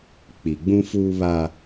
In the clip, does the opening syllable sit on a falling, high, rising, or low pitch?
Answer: low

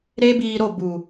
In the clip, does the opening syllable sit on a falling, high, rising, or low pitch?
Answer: high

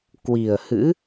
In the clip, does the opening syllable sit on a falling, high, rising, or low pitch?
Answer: low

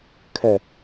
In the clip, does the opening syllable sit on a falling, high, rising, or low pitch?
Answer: low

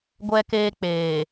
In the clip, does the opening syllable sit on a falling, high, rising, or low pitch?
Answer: high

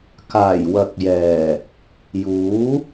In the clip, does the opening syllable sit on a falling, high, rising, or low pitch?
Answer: low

